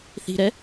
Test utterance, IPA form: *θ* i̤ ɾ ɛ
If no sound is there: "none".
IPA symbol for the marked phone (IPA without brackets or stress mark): θ